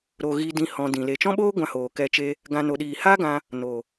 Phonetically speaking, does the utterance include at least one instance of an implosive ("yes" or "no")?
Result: yes